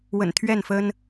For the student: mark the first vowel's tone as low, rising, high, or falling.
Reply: low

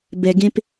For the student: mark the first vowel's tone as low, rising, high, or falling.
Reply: low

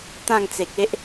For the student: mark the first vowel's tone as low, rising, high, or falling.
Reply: falling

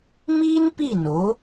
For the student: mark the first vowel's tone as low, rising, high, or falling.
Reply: high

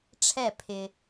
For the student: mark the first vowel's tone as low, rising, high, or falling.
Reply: falling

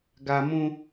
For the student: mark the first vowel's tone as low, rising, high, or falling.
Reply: high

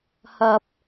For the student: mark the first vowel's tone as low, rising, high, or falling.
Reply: low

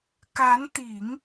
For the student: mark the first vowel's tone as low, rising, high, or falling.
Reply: rising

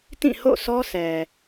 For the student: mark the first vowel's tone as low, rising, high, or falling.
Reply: falling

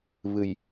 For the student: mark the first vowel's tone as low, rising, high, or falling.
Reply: low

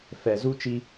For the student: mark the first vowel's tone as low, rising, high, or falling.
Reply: low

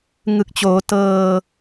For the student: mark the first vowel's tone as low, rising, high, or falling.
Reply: low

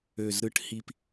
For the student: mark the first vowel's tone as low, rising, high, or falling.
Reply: low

